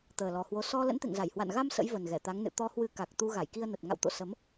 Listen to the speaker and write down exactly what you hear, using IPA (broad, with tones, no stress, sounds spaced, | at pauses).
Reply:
t̪ əː˨˩ l ɔ˨˩ h w o˨˦ s ɔ˧ l ə̰˧˥ n t̪ ḛ˧˨ ŋ z a˧˩ j h w a̰˧˨ n ɣ a˧ m s ə̰˧˥ j v ə˨˩ n ɣ ɛ˧˩ t̪ a˨˦ ŋ n ɨ̰˧˨ t̪ ɔ˧ h w ɨ˧ k a˨˩ k̚ t̪ u˧ ɣ a˧˩ j k i˧ ə̯ n ə˨˩ t̚ ŋ a̰˧˨ w t̪ o̰˧˨ s ə˨˦ m